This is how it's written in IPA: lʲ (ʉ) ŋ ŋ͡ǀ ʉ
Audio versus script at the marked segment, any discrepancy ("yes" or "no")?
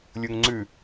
yes